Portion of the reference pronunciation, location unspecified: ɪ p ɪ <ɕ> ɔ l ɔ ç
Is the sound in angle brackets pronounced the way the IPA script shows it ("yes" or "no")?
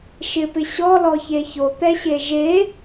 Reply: yes